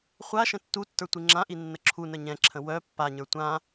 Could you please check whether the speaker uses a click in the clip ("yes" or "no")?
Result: yes